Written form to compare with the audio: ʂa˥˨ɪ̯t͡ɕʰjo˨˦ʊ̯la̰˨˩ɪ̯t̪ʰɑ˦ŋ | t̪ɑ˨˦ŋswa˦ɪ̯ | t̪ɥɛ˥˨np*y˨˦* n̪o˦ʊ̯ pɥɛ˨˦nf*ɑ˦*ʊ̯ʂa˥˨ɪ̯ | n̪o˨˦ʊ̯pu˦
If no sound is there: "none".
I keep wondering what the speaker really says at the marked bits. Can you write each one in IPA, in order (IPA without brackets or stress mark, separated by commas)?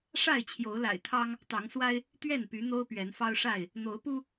y˨˦, ɑ˦